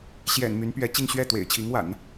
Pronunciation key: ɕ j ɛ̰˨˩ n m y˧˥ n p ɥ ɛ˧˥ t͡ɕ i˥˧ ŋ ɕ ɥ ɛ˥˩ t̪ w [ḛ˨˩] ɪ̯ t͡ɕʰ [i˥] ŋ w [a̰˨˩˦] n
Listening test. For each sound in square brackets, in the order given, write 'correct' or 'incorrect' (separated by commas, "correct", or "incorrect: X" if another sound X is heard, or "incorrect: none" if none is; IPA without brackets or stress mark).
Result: correct, incorrect: i˧˥, correct